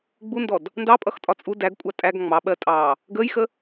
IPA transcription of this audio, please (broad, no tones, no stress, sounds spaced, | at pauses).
ɡ͡b u n d ɔ d | n d ɑ pʼ ʌ x tʼ ɒ t͡sʼ u d æ ɡ kʷʼ ɑ tʼ æ ɡ ŋ͡m ɑ ɓ ɜ tʼ ɑ | ɡ əː j x ə